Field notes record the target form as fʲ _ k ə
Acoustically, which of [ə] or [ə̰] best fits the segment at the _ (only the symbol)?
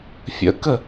ə̰